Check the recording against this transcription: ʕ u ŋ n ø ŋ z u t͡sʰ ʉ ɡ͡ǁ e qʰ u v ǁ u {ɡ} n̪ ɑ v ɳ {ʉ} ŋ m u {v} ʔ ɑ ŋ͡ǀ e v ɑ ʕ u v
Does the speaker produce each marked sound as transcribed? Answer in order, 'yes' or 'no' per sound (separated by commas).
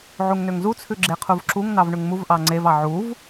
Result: no, yes, yes